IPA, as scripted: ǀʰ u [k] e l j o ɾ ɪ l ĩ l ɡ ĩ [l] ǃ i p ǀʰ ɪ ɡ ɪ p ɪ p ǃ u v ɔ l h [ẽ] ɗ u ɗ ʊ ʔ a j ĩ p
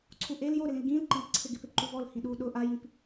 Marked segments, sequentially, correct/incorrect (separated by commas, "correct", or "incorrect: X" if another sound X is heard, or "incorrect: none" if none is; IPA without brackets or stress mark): incorrect: ʔ, correct, incorrect: ĩ